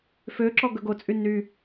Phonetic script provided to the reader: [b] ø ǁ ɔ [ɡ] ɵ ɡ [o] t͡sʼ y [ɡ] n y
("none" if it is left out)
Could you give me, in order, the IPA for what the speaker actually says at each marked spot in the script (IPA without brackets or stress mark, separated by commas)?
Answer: f, ɡ, o, none